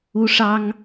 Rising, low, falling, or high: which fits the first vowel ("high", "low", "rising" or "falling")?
high